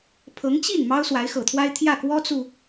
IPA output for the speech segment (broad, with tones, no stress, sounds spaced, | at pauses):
pʰ ɤ˧˥ ŋ t͡ɕ i˥˩ n m ɑ˥ ʊ̯ s w a˧˥ ɪ̯ x ɤ˨˩ t̪ʰ w a˥ ɪ̯ t̪ʰ j ä˥˩ k w ɔ˥ t͡s u˨